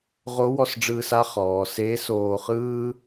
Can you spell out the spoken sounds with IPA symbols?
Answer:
ʁ o˧˥ w ɔ˧ s ɖ͡ʐ ɯː˧ s a˥ χ ɔː˩˧ s eː˧˥ s oː˧ χ ɯː˥

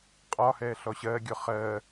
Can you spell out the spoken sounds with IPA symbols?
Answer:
qʼ ɒ h ɛː ɬ ɔ ɕ ɜ ɡʲ ɔ χ ɜː

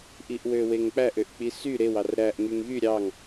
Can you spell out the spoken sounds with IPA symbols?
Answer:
ʔ i ʔ w ø w e ŋ k͡p æ ʔ ø ʔ k͡p i s y ɾ e w ɑ r ɾ æ ʔ ŋ y ŋ ɣ y ɾʲ ɑ ŋ

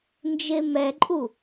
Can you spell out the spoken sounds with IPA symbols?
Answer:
n d͡ʒ e m ɛ ǃʼ u

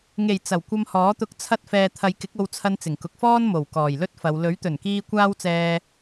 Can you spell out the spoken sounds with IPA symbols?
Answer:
ŋ e˨˩ j t͡s ɐ˨˩ w kʷ ɐ˧ m h ɔː˨˥ t̪ ʊ˧ k̚ t͡sʰ ɐ˧ t̚ f ɛː˨ t̪ʰ ɐ˨˧ j k ɪ˨˥ k̚ o˧ w t͡sʰ ɐ˧ n t͡s ɪ˨˩ ŋ k ʊ˨˥ k̚ f ɔː˥ n m o˨˩ w k ɔː˨˩ j l ɵ˥ t̚ f ɐ˨˧ w l ɵ˨˥ ɥ t̪ ɵ˨˩ n k iː˧ kʷ aː˥ w t͡s ɛː˧

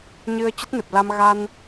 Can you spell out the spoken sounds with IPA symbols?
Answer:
ɲ ɨ˧ ə̯ t͡ɕ ə˦˥ t̚ n ɨ˨˩ p̚ l a˧ m ɣ a˧ n

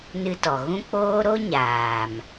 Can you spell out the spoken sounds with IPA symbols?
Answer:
n ɨ˧ t ɔ˨ ɣ ũ˦ k͡p oː˦ ɾ o˦ ɲ aː˨ m

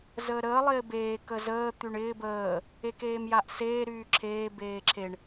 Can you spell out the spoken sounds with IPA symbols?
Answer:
z əː ɾ əː lˠ ɪː b eː k ə z əː t̪ y ɳ ɪː b əː | e k eː m j a ʔ s eː ɾ yː ǁʰ eː b eː ǁʰ e ɳ

